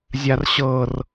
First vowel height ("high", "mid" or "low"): low